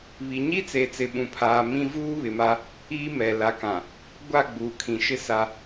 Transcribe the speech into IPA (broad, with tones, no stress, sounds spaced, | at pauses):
β i˨ ɲ i˦ t͡s e˨ t͡s ɪ˨ ɓ ũ˨ pʰ aː˨ m ĩ˦ v uː˦ β ɪ˨ m a˦ | iː˦ m ɛ˨ l a˨˦ k ã˨ | ɡʷ a˦˨ ɡ͡b uː˨ kʰ ĩ˨ ʃ ɪ˦ s a˦